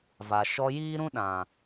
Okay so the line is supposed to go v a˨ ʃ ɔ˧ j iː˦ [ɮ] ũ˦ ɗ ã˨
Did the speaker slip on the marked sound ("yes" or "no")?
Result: yes